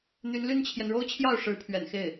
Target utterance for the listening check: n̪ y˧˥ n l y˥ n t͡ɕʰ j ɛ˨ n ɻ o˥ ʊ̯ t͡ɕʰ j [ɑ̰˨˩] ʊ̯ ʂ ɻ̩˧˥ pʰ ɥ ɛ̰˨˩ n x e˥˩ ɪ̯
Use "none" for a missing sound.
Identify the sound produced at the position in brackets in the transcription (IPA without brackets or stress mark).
ɑ˥˩